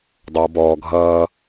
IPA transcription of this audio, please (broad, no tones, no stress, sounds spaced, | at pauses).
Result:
dˤ ʌː b ɔː ɡʱ ʌː